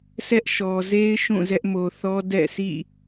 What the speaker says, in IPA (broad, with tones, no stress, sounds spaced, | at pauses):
s ɛ˦ ʔ ʃ ɔ˨ z e˦ ɪ̯ ʃ ũ˦˨ z ɛ˦ ʔ m o˨ θ ɔ˦ d ɛ̰˦˨ sʰ ḭ˦˨